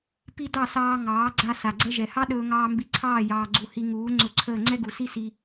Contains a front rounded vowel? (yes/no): no